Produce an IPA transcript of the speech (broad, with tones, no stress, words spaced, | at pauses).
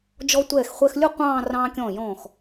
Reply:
d͡ʒɔ˧tʷɛː˧˩xχʷɛ˧xlʲʊ˥˧ qʷɑ̃ː˥˧ rɑ̃ː˧kʲɔ̃ː˧˩jɔ̃ː˧˩x